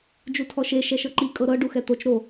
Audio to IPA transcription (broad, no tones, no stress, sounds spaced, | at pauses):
d͡ʒ u tʰ ɔ ʃ e ʃ ɛ ʃ ɤ ǃ i kʼ ɤ ɾ ɤ ɖ u x ɛ t̪ o t͡ʃ ɾ o